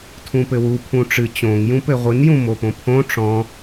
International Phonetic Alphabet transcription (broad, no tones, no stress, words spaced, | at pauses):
tʰũpɘwu pʰũʈ͡ʂɨ t͡ɕõŋ jũpɘʁʷɨn jũmopõpʰõ ʈ͡ʂɔ̃